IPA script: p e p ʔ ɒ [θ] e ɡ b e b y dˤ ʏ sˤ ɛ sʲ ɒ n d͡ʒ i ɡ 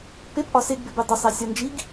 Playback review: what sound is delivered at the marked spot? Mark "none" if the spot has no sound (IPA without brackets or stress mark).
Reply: s